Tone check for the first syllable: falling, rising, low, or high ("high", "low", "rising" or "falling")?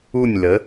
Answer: falling